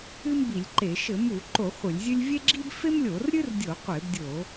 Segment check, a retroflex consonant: absent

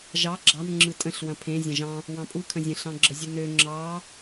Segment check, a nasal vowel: present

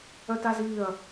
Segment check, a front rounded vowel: present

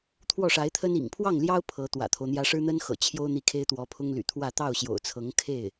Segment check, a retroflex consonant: present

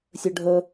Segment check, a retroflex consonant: present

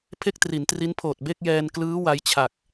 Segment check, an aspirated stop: present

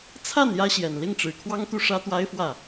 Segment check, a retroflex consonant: present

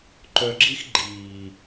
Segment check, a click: present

